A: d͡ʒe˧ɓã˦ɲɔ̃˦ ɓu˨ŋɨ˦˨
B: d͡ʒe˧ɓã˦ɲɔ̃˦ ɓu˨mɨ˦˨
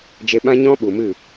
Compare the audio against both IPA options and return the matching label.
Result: B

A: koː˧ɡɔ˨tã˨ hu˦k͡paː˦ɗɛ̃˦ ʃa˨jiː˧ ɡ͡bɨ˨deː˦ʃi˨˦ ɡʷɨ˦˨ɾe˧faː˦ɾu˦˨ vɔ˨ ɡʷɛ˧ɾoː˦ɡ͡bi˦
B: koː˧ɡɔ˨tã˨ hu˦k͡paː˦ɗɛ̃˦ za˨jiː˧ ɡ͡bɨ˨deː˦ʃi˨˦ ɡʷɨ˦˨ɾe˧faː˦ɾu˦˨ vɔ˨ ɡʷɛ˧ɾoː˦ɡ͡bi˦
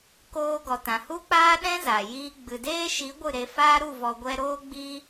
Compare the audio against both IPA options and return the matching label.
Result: B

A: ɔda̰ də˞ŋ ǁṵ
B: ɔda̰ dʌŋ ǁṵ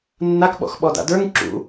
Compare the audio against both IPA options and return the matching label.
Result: A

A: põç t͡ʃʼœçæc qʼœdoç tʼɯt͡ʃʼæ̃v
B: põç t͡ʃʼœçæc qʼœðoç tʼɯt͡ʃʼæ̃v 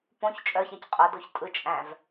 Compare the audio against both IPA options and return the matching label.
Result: A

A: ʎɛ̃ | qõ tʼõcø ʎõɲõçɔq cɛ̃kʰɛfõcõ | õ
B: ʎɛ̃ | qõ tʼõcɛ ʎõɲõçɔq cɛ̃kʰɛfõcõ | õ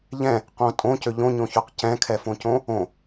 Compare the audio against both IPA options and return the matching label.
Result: A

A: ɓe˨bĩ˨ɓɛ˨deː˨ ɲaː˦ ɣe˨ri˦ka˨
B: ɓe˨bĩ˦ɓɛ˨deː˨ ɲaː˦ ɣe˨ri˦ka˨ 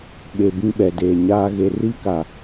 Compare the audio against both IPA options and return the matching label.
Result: B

